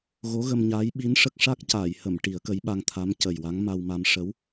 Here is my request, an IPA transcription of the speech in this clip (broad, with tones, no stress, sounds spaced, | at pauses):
ɣ o˧˥ ɣ ə˧ m ɲ aː˧˥ j ɓ i˧˥ n ʂ ə˦˥ k̚ ʂ a˦˥ k̚ c aː˨˩˨ j h ə˨˩˨ m ʈ i˨˩˦ ə̯ k ə˧˥ j ɓ a˧ ŋ t̪ʰ a˧˥ m c ə˨˩ j w a˧˥ ŋ m a˧ w m a˧ m ʂ ə˧˥ w